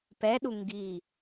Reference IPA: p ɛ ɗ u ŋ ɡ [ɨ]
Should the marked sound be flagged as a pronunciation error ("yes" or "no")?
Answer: yes